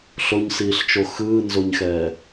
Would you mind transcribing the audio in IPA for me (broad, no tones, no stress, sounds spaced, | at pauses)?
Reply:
ɬ o ɲ s iː ɬ t͡ʃ o x ɯː n z o ɲ x ɛː